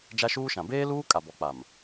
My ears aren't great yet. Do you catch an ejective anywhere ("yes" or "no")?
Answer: yes